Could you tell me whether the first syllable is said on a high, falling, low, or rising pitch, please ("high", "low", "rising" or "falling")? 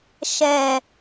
low